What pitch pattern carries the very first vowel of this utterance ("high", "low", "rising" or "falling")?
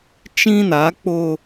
high